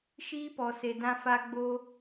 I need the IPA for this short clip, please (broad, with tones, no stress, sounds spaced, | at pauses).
ʃ iː˦ p ɔ˨ s e˨ d ã˦ f a˦ ɡ͡b o˦